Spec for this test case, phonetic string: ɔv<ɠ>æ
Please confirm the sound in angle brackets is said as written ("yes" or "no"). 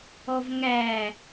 no